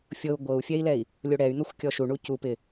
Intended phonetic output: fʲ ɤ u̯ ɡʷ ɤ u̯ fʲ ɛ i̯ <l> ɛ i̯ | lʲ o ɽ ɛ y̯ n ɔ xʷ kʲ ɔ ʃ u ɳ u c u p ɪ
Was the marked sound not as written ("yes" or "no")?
no